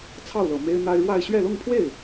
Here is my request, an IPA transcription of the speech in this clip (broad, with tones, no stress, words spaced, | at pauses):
t͡sʰɑ˥˩ʊ̯lɤ˨˩ me˥ɪ̯n̪a˥ɪ̯ ɻwa˥˧ɪ̯ ɕɥɛ˥˧lʊ˥˧ŋpʰwe˥˩ɪ̯